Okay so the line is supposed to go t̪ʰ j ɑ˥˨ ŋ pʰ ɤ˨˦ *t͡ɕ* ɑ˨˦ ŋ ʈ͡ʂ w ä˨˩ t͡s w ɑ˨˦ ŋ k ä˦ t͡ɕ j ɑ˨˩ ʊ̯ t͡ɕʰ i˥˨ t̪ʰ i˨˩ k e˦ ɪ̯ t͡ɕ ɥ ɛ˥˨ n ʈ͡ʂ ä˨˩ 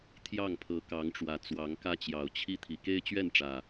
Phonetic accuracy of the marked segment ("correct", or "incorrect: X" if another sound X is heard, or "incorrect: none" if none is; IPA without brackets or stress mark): incorrect: k